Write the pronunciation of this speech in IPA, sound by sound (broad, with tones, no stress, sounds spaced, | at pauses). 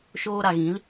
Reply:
ʃ oː˧ ɾ a˨ ɣ ĩ˨˦ l